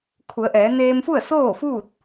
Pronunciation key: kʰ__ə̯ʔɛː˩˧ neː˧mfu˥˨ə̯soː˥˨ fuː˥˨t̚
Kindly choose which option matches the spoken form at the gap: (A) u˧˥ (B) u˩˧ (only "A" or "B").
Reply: B